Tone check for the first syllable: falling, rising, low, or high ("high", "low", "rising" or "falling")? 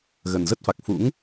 low